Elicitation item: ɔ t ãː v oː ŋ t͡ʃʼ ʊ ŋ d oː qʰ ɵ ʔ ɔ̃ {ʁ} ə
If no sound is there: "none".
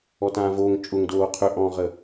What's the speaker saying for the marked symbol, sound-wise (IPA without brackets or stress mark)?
ʁ